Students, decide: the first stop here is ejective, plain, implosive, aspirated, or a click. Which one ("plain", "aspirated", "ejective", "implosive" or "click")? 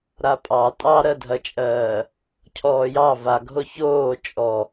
ejective